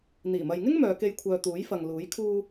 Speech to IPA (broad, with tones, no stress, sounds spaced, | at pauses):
n̪ iː˨˩ m ɐ˨ j ŋ ɪ˥ ŋ m œː˨˧ k e˧ j kʷʰ œː˨ t̪ uː˨˥ j f ɐ˨ ŋ l uː˨˥ j kʰ uː˧